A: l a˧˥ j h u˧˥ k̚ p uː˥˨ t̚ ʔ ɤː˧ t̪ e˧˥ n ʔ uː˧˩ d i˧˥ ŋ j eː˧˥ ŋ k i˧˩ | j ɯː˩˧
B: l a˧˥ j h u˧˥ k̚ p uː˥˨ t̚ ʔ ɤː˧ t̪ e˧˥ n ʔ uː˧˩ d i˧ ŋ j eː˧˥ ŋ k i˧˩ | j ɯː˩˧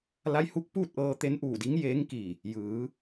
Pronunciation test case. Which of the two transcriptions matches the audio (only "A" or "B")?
A